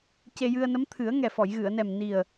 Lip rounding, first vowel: unrounded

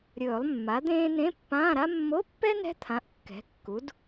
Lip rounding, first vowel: rounded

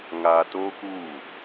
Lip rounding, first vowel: unrounded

